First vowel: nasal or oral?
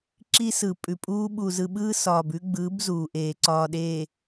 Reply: oral